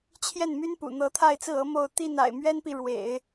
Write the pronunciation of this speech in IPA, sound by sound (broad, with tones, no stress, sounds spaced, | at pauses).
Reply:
t͡ɕʰ j ɛ˥˩ n m y˥ n p ṵ˨˩ n̪ ɤ˧˥ t̪ʰ a˥˧ ɪ̯ t͡s ɹ̩˥˩ ɤ˧˥ m o˥˧ ʊ̯ t̪ i˥˩ n a̰˨˩ ɪ̯ m ɥ ɛ˥ n p i˨ ɻ w ḛ˨˩˦ ɪ̯